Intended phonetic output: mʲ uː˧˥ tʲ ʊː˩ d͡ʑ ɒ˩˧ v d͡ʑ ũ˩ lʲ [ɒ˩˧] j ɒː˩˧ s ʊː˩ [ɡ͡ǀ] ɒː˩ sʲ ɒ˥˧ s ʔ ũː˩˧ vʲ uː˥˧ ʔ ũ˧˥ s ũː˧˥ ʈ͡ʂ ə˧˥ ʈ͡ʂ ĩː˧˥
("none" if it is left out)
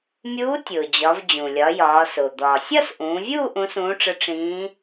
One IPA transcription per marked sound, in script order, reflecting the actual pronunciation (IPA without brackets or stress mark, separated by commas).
ɒ˩˧, d̪